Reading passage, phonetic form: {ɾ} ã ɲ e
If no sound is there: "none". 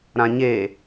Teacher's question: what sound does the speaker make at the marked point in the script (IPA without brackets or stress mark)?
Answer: ɾ